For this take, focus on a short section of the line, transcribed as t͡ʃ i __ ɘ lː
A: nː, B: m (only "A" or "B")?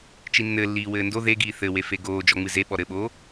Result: A